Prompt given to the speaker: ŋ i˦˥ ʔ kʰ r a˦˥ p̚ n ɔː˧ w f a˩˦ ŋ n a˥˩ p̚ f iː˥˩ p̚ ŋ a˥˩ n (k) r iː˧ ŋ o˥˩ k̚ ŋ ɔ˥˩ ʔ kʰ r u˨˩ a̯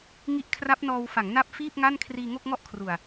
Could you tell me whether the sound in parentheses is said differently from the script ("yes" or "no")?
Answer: yes